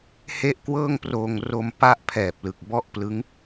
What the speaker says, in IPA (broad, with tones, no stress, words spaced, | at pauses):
he˥˩ʔkwɤː˥˩ŋproː˧ŋ ro˧mpa˦˥ʔ pʰɛː˨˩p̚lɯ˨˩k̚ bɔ˥˩ʔplɯ˦˥ŋ